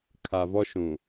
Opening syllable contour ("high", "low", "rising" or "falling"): low